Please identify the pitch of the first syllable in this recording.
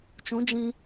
rising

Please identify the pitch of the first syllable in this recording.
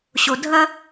low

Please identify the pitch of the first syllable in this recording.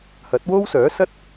rising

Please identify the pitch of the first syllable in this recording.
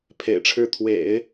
low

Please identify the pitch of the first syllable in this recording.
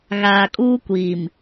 low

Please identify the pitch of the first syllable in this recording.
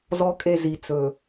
low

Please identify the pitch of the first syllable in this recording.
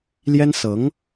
high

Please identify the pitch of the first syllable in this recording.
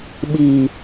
low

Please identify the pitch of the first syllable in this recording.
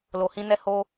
low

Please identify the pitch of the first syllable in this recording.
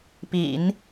low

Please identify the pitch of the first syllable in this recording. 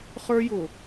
high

